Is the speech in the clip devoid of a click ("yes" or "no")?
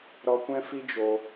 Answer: yes